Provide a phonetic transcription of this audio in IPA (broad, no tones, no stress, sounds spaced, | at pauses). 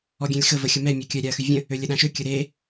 ɔ ɡʲ ɛ̃ lʲ x ə v ə xʲ ə m ɛ mʲ ɔ kʲ œ ɾʲ a ɐ̯ x y vʲ ə̃ | ø lʲ ə ɗ ã ʃ ø kʲ ə ɾ e